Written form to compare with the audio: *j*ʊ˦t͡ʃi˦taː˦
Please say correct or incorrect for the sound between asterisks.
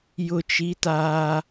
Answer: correct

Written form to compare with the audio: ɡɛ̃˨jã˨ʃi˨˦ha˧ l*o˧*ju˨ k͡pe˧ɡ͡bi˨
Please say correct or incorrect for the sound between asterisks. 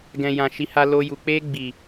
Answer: correct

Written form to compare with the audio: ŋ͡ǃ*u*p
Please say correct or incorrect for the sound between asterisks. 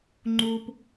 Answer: correct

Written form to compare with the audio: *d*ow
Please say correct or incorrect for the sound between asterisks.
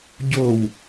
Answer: incorrect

